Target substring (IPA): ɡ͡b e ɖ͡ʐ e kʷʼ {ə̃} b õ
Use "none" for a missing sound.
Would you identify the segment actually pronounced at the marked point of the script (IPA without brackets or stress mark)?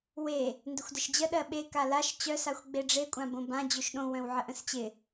ã